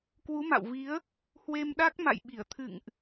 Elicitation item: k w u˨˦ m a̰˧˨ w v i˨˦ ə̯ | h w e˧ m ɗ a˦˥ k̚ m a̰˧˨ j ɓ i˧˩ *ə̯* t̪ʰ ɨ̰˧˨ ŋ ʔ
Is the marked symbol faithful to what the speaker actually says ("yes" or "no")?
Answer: yes